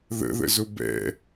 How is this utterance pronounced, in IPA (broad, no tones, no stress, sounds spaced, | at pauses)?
ð ə̰ ð ə̰ z ʊ b ɛ̰